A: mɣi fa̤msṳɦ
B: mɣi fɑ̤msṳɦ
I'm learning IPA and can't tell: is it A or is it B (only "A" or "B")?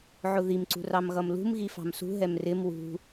B